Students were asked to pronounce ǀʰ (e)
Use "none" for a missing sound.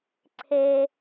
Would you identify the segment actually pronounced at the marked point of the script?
e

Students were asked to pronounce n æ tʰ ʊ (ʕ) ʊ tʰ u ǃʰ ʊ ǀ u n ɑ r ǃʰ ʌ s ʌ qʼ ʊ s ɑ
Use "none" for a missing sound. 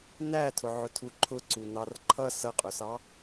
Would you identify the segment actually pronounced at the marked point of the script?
ʕ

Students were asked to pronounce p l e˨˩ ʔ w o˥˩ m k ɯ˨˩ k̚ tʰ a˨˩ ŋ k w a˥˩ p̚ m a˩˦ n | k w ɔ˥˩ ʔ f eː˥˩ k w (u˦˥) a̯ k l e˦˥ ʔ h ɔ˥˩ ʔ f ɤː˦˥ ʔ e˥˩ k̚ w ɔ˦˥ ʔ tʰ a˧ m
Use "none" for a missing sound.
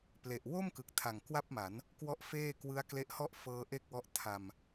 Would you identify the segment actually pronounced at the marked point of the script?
ɯ˦˥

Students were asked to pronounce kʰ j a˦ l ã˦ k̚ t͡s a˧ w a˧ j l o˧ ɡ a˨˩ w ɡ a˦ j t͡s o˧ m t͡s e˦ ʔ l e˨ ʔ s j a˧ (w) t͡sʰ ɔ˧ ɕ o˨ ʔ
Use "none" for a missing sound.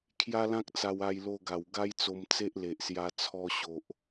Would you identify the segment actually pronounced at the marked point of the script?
none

